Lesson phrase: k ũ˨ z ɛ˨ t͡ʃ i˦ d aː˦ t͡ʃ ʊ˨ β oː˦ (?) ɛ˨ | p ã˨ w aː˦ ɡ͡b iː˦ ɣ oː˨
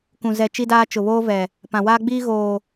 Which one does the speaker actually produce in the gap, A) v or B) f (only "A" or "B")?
A